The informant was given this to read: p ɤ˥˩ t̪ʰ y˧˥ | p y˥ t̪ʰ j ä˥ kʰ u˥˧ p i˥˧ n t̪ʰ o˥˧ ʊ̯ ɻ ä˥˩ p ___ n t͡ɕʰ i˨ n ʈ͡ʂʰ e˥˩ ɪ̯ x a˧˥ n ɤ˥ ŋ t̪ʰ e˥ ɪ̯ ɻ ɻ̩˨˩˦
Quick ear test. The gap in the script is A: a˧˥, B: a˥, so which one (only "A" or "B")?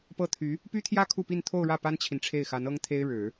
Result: B